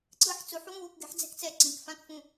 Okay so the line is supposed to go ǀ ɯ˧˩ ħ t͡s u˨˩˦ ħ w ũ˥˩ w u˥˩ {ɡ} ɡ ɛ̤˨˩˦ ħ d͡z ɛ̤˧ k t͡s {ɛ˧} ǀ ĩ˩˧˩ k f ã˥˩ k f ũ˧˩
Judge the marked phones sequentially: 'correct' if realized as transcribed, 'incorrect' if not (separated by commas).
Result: incorrect, incorrect